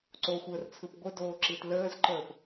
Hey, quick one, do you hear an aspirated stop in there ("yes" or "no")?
yes